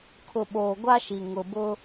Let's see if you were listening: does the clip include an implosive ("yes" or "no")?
yes